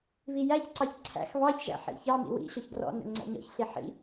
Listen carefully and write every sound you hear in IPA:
βijæçǀɑç ǀʰæ̰x βɑçʒæ̰ ħḭçɑmḭ wḭɕɔç ɡrɔ̰nə̰ ŋ͡ǀæ̰ɲɔ̰çɬi ħḭ

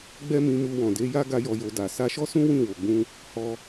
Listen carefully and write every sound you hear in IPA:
ɡ͡bɛ˦mĩ˧mu˧ wɔ̃˨de˨˦ja˦ ɡa˦jɔ˧jo˧ da˨ sa˧ʃɔ˦sũ˦ wĩ˦˨wo˨ɡ͡bũ˧ | hɔ˧

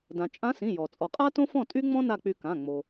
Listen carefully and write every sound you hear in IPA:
dã˩t͡ʃʼã˧˥sĩ˩˧˩ jɔ˩ t͡sʼɔ˩qʼa˥ tõ˥fɔ̃˥˨ tʼy˥ŋ͡mɔ̃˥ na˥˨k͡py˧ kã˩˧˩ ŋ͡mo˩

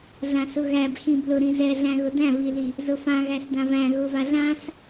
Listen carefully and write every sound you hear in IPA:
ɮãsʊɣæb xĩblʊɾĩ zɛɮæ̃ɣʊ dæ̃βili | zʊfã ɣæsdãvæ̃ ɣʊvaɮãs

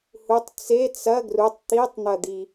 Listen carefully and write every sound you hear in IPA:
hutˤ t͡se t͡sɐ ɡrutˤ t̪itˤn̪ɐd̪i

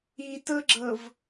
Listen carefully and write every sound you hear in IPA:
itɤɡ͡ǁɤv

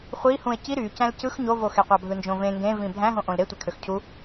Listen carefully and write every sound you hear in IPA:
χʷihũe̯ ci ɾy cæ̃lcɯx ɲovoxeqʷɑ bʱɯnd͡ʒõvẽ ŋɡẽvĩ bʱæ̃ɦõ ʔõlɾe tʷækʰøxcʰu

